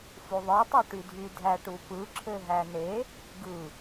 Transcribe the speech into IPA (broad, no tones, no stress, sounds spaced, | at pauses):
f u ðˤ ɯ tˤ ø ʈ y dʱ y dʱ æ ʈ u p ɯ ǁʰ ø ɦ æ n e | ɡ ɯ